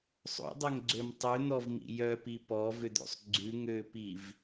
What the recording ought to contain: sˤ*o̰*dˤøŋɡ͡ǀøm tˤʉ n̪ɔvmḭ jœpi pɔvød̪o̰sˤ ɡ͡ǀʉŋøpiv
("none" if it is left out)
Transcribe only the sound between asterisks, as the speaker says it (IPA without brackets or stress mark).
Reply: o̰